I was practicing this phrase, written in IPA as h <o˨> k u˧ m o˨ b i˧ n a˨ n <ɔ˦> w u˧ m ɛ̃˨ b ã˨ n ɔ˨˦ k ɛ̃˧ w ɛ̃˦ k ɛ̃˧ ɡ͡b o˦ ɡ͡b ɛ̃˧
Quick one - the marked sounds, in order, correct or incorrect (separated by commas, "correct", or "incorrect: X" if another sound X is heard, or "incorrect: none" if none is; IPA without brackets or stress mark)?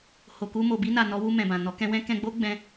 correct, incorrect: ɔ˨˦